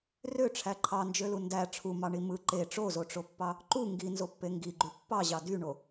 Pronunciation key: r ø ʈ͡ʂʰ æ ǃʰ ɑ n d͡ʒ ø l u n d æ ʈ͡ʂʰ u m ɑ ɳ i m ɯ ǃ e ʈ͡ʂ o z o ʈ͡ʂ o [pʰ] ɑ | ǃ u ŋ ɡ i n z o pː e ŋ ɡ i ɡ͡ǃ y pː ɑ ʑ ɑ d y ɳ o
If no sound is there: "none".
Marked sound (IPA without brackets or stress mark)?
pː